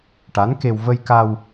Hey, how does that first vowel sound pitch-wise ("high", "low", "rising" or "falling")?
rising